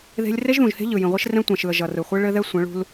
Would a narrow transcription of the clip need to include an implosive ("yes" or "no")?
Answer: no